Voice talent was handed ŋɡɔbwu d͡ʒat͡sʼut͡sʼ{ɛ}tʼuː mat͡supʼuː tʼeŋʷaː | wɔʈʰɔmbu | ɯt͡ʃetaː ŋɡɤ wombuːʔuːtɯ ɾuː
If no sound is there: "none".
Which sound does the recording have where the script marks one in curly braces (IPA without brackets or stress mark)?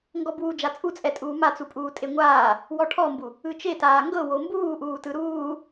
ɛ